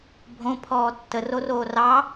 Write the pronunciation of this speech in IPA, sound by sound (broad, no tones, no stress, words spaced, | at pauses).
bʱõ pʰɔːtːə roroːrɑ